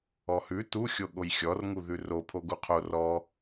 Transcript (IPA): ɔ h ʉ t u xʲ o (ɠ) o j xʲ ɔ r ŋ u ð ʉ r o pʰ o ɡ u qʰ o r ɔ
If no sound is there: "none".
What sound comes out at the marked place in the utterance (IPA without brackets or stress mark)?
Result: ɠ